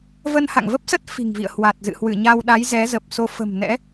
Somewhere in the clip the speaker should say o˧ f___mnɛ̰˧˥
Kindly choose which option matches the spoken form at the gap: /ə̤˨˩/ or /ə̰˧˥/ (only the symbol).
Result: ə̤˨˩